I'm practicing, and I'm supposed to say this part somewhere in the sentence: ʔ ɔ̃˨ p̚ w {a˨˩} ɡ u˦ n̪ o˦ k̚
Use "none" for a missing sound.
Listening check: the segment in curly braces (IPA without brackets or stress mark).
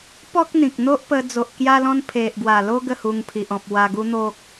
a˧